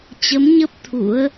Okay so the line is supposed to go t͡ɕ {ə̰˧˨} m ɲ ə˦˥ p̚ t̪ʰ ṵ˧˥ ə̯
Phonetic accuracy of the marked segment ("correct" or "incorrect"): incorrect